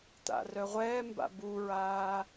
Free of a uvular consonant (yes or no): no